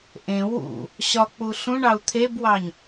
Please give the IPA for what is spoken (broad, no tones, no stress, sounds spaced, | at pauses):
ʔ ẽ w ṵ | ɕ ɒ k͡p u ɬ ũ ɳ ɑ u̯ t̪ʰ e b w ɑ ɲ